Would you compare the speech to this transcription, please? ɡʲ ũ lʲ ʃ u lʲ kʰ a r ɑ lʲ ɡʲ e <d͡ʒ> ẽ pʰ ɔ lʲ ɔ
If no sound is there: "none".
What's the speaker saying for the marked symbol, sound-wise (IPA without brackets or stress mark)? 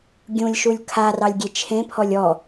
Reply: t͡ʃʰ